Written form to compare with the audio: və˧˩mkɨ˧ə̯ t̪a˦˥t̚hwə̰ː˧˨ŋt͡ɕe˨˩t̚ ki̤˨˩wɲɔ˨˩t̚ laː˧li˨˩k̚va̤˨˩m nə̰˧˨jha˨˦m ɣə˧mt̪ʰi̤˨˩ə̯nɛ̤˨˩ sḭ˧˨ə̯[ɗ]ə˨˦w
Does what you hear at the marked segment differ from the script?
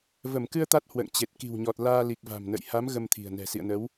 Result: yes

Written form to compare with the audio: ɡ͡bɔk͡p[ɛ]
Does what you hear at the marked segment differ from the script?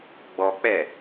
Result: no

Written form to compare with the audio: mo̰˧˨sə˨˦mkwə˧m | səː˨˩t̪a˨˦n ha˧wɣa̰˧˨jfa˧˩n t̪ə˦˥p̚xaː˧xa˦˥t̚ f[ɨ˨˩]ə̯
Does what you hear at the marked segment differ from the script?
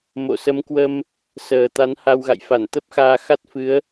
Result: yes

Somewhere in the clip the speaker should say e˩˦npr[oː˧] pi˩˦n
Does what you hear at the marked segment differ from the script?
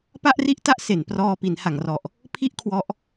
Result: yes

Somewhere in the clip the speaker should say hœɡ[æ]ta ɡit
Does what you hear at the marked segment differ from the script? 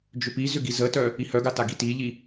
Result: yes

